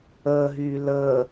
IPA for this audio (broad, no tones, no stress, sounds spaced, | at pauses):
əː ɦ yː l əː